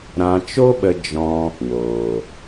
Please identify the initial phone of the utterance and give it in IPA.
ɾ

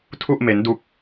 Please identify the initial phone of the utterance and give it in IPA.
tʰ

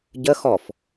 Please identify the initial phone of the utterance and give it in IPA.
ɟ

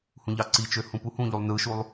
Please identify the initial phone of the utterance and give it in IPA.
h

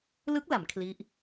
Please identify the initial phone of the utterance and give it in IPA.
l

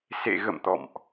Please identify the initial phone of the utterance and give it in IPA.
s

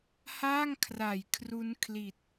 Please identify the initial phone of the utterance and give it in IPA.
h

